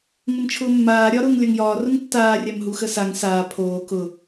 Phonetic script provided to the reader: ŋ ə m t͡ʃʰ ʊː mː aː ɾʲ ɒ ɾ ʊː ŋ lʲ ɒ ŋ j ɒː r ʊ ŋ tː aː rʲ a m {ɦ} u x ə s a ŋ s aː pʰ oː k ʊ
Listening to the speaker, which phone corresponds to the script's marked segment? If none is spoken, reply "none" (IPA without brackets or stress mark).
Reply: ɦ